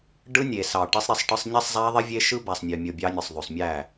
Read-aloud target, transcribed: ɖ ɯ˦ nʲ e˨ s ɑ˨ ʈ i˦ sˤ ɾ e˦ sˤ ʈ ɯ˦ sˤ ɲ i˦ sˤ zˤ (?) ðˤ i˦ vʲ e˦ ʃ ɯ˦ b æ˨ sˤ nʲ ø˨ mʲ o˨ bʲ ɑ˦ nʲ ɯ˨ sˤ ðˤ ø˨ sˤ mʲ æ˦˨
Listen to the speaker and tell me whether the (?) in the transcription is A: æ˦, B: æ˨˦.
A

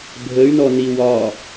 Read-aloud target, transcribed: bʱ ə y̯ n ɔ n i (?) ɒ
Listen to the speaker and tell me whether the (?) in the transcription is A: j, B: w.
B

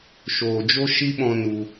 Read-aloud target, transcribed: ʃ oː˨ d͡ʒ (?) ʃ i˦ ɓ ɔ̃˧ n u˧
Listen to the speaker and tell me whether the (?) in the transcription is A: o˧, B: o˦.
B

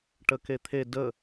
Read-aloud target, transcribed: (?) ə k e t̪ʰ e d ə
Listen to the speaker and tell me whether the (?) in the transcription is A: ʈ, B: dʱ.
A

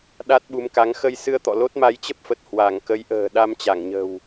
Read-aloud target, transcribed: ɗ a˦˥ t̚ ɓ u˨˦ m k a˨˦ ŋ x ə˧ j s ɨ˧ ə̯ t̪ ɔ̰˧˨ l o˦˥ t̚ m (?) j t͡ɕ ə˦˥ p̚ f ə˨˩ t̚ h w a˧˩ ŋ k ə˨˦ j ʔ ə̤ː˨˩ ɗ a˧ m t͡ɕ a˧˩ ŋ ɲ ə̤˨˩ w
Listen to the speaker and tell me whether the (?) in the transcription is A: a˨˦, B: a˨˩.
A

